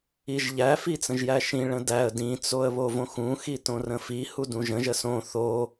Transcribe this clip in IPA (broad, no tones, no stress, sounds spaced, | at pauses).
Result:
i ʒ ʎ æ f i t͡s ə̃ ʒ j æ ʃ ĩ ɭ ə̃ d æ ə̯ d ĩ t͡s o ə̯ β o v õ x ũ x i t õ r ə̃ f i h u d ũ ʒ ə̃ ʒ ə s õ θ o